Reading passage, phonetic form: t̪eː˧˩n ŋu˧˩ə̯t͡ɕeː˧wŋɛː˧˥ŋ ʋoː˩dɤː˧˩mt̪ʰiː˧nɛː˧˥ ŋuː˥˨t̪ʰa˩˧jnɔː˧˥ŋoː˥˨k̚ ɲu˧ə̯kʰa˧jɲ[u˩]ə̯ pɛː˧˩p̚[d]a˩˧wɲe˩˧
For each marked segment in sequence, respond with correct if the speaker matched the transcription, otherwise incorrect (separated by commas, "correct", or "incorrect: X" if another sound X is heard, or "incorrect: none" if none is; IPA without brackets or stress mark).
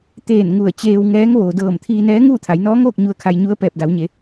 incorrect: u˧˥, correct